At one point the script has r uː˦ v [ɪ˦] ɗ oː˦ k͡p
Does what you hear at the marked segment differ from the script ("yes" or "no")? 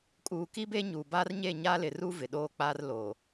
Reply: yes